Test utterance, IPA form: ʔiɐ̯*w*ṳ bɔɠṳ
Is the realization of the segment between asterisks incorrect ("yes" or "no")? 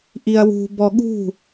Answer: no